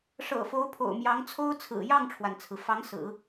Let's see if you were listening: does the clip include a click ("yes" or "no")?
no